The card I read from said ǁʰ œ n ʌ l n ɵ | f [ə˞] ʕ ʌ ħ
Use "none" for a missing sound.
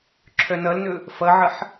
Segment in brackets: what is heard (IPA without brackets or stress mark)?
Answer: ʌ